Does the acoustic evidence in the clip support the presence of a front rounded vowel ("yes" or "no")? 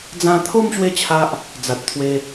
no